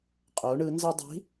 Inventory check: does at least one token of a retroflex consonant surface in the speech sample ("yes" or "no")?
yes